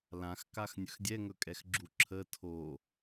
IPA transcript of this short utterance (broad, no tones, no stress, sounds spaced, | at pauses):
l ã x k a x nʲ ɵ x dʲ ɛ ŋ ɵ kʼ ɛ x ɡ͡ǁ u ǁʰ ə tʰ o